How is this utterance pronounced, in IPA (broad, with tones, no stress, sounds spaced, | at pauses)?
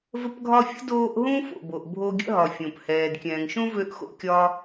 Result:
v ə˦ p ɡʱ ɒ˦ fʲ ə̰˥ d oː˦ ʔ ɦ ũ˥ f o̰˨ b o˨ ʔ bʱ o˦ ɡʲ ə̰˥ ɦ ɒ˨ fʲ ũ˩ p h ɛː˨ d kʲ ɛ̃ː˨ ŋ ʃ ũ˥ v ø˦ ʔ x o̰˦ kʲ ɒ˥